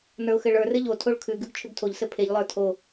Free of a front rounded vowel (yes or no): no